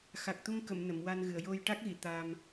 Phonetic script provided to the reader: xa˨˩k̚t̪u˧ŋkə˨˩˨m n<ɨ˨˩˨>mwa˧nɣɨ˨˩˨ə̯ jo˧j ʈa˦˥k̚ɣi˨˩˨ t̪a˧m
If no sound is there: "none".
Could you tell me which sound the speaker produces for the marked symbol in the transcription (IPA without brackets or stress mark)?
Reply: ə˨˩˨